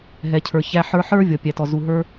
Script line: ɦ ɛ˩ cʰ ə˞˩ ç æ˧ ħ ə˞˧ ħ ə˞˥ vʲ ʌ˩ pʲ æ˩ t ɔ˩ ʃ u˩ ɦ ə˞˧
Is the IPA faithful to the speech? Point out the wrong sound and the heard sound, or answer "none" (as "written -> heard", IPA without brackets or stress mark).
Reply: ʃ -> z